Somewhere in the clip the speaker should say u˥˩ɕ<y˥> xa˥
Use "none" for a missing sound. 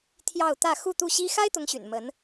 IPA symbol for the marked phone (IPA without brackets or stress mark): i˥